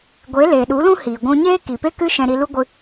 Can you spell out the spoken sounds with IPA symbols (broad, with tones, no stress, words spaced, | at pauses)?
ɡʷe˨˦ leː˨ɗu˨˦lũ˦ hiː˨ɡʷũ˧ɲeː˦ ki˨pe˦kɨ˦ ʃɛ̃˧ɾi˧lu˦ɡʷɨ˧